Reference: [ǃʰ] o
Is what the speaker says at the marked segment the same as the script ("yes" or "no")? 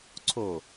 no